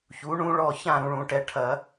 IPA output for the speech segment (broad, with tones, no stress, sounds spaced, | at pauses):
ç u˩˥ ɳ ũ˦˥ ɭ ɔ˥˨ ç ã˥˨ ɾ ũ˨ ɭ ũ˨˩˦ ʈ ɛ˩˥ ʈʰ ɐ˨˩˦